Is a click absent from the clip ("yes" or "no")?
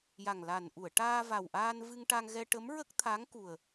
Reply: yes